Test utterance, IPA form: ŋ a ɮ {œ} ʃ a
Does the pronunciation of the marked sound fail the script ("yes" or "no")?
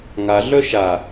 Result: no